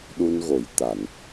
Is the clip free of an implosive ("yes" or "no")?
no